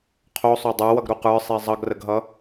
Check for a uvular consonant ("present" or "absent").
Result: present